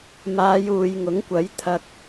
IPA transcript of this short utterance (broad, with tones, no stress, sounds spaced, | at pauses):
m aː˨˧ j uː˨ j ŋ ʊ˨˥ ŋ kʷ ɐ˨˥ j t̪ʰ ɐ˧ k̚